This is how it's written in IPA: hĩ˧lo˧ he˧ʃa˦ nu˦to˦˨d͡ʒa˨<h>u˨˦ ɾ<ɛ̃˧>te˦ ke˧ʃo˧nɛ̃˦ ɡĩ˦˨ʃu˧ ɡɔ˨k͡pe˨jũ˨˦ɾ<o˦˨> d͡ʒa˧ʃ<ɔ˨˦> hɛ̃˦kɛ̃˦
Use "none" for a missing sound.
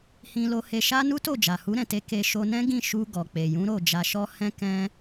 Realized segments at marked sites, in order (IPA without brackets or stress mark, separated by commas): h, ɛ̃˧, o˦˨, ɔ˦